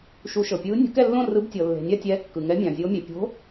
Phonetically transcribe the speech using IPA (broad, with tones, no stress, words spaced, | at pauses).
ʃu˨˥ʃɤ˩ pʲɯː˨˥nʲo̤˨˥kɛ˥˨lːõ˥˨ rɯ˨˥btʲɤ˩lːe̤˩ nʲa˥˨tʲɛː˨˥ kːɯ˩ŋɛ˨˥mʲã˩ zʲo˨˥mʲɛ˩ pʲo̤˨˥